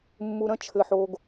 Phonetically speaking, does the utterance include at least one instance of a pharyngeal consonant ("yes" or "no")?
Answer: yes